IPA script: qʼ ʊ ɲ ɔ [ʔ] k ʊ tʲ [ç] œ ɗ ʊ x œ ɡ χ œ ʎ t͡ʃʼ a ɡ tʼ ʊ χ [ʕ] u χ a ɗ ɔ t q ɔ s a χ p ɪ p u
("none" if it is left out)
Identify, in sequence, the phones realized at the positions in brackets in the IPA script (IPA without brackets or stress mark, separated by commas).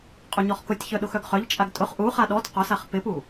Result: χ, ç, ʔ